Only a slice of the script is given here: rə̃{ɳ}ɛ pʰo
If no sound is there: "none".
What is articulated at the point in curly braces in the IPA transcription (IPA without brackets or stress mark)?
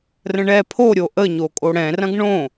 ɳ